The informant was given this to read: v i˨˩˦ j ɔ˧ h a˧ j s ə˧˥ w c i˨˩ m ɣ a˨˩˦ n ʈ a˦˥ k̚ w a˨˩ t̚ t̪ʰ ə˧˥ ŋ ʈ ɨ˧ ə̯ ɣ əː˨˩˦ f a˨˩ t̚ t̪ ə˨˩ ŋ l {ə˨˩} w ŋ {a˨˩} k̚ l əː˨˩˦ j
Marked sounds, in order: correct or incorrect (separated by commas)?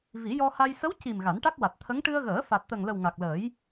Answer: correct, correct